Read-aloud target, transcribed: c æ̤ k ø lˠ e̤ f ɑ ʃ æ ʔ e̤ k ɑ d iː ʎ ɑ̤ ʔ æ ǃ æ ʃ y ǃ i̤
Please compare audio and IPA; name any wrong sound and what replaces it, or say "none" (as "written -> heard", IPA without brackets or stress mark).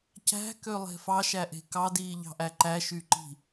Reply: none